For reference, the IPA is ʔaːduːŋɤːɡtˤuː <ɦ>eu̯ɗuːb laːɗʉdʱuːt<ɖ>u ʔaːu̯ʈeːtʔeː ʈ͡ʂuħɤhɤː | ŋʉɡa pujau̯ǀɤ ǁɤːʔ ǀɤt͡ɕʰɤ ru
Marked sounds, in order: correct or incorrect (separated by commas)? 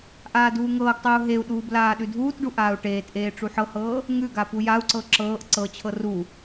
correct, correct